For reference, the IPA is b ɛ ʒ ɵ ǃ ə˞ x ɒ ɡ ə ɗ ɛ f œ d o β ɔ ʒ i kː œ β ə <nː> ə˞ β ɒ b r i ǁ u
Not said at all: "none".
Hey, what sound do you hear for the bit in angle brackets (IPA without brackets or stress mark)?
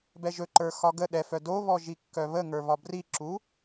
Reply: ŋ